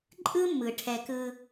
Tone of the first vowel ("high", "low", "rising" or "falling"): high